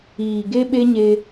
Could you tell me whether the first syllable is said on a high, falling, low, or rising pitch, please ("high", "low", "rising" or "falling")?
low